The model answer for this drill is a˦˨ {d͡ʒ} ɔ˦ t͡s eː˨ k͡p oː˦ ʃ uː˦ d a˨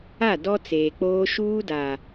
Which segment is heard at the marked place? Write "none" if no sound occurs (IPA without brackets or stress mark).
d